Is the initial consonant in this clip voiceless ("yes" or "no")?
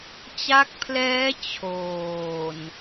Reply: yes